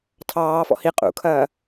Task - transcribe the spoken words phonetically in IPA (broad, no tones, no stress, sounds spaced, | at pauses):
tʰ ɑː f ɔ̰ h i qʼ ṵ kʰ ɐː